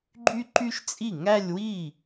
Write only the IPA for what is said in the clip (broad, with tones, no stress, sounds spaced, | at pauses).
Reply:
ɡ͡ǃ y˥ ǃ y˥ ʃ t͡sʼ i˥˩ ŋ æ˥˧ lʲ w i˥˩